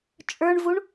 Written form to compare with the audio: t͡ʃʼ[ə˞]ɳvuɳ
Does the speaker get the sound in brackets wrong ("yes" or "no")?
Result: no